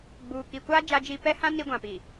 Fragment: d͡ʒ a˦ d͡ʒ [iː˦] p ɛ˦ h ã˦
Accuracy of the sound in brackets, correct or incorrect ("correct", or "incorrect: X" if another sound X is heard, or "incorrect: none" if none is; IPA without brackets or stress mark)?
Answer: incorrect: i˦